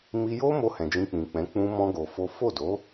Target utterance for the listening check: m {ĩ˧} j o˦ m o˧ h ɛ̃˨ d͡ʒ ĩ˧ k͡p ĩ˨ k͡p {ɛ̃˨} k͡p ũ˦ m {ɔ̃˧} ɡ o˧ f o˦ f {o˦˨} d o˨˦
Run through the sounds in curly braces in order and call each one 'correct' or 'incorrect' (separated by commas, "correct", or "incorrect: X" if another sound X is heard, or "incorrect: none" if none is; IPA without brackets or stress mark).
incorrect: i˧, incorrect: ɛ̃˨˦, incorrect: ɔ̃˦, correct